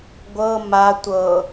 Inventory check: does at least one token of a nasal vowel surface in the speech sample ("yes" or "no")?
no